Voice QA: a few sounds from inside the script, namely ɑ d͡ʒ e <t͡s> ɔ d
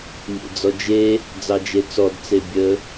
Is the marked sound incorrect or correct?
correct